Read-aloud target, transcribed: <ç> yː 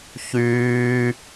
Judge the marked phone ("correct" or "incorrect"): correct